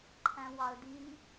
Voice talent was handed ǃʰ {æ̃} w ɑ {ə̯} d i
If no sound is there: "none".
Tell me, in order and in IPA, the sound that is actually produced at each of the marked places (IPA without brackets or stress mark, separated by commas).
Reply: æ̃, ə̯